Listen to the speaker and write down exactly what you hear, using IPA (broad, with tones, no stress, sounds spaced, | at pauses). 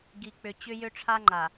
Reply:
ɡ i˨ k͡p ʏ˨ t͡ɕ ʏ˦ j ʏ˦ ʈ͡ʂʰ a˦ ŋ͡ǃ a˨